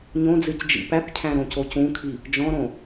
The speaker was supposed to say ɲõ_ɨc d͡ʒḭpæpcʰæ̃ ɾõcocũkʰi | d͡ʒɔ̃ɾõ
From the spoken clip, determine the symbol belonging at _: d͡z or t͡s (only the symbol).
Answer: d͡z